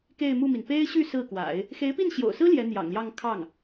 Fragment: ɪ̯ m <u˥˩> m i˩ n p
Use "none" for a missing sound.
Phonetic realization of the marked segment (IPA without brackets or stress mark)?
u˥˩